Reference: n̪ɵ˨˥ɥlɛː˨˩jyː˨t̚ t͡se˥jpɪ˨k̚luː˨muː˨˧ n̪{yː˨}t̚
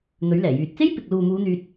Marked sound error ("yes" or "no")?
yes